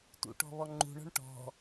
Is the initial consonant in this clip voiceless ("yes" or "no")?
yes